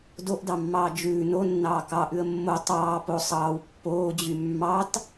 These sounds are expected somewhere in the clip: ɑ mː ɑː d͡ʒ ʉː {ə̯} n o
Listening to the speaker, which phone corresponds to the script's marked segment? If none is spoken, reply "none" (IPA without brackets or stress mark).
none